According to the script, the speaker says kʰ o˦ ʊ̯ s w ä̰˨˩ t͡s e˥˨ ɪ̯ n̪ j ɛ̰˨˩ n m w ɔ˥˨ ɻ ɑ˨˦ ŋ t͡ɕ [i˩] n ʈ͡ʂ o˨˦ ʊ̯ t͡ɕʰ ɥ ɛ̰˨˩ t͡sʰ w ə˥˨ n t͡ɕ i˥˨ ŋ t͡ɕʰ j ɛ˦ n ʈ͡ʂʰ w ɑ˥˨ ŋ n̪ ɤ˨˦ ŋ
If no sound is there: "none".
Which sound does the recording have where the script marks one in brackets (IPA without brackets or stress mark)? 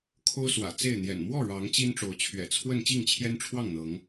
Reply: i˦